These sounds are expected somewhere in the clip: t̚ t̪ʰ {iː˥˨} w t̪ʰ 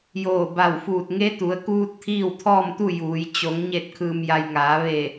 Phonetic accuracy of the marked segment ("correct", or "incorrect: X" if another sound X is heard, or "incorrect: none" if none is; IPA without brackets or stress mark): correct